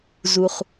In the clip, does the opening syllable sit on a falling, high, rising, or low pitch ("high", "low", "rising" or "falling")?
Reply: low